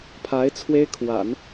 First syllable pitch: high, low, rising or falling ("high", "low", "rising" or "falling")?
rising